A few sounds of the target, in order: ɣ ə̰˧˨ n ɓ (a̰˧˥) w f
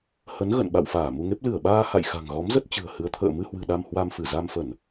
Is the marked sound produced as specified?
no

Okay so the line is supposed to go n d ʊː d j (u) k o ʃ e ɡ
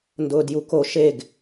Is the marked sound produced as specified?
yes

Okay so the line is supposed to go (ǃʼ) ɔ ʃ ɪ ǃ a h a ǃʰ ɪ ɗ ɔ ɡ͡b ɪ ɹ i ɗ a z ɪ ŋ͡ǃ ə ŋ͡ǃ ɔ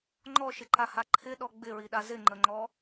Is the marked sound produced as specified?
no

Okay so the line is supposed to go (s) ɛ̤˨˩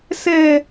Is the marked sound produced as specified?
yes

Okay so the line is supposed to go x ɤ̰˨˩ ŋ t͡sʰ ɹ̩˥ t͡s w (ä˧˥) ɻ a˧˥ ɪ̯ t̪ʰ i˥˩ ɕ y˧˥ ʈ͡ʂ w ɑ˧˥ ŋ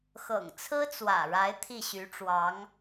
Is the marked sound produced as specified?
no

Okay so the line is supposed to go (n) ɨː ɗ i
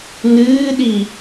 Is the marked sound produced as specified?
yes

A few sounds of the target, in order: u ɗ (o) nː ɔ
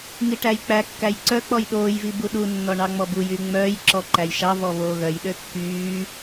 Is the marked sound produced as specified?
no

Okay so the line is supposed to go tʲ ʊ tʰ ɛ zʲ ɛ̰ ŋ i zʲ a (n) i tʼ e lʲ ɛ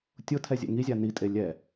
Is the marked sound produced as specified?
yes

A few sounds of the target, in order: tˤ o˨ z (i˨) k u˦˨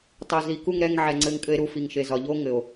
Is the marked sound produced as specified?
yes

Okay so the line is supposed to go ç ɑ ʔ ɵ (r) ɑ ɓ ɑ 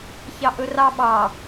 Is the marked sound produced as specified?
yes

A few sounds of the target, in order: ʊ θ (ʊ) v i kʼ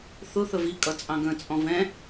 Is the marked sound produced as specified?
no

